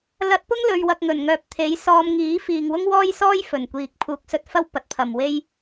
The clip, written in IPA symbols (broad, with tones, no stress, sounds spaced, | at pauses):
l ɐ˧ t̚ p ʊ˥ ŋ l ɵ˧ ɥ w ɐ˧ k̚ ŋ ɵ˨˩ n ŋ œː˨ p̚ t̪ʰ e˨˥ j s ɔː˧ m ŋ iː˨˥ f iː˨ ŋ w ʊ˥ ŋ w ɔː˥ j s ɔː˥ j f ɵ˨˩ n kʷ iː˨ k̚ pʰ uː˨˥ k̚ s ɵ˧ t̚ f ɐ˥ w p ɐ˨ t̚ pʰ ɐ˨ m w e˥ j